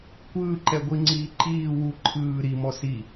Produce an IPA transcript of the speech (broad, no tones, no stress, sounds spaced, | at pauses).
kʷ ɯː ǃ ɛ ɡʷ i ŋ͡ǀ iː ǃ iː w u ǃʰ ɯː ɾ i m ɔ s i